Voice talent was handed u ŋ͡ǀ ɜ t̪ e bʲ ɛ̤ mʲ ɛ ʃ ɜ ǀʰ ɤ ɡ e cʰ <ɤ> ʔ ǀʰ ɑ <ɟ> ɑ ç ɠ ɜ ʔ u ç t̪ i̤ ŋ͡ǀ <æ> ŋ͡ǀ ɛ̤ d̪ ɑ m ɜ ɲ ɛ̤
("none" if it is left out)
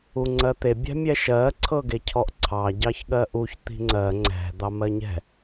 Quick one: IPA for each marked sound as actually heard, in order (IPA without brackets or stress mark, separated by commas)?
ɔ, ɟ, ɜ